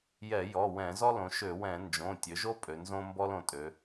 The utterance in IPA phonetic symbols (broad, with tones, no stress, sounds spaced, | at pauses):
j ɛ˧˩˧ j ɔ˩˧˩ w ɛ̃˧˩˧ z ɔ˥ l õ˩˧ ʃ ø˧˩˧ w ɛ̃˧˩˧ n d͡ʒ õ˩˧˩ tʲ ø˩˧ ʒ o˥ pʼ ø˩˧ n z õ˥ m b ɔ˥ l õ˩˧ tʼ ø˩˧